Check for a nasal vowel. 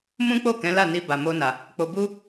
present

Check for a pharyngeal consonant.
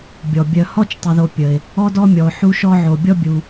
present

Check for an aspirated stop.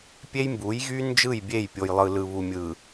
absent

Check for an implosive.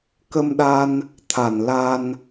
present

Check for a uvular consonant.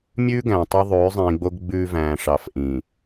absent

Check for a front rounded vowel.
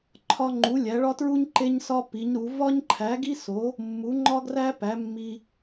absent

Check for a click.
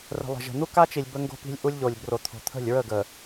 absent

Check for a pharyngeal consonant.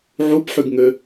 present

